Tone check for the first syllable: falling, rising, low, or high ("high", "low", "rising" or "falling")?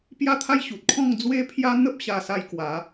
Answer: falling